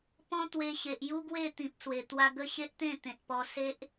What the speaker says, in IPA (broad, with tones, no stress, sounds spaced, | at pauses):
p ɔ̃˦ t̪ w e˧ ɕ e˨ ʔ j u˦ ɡ w e˥˧ t̪ ĩ˨ p̚ s w e˨˩ t̪ w a˧ ɡ ə˦ ɕ e˦ ʔ t̪ ẽ˥˧ t̪ ẽ˨ t̚ p ɔ˧ s e˦ ʔ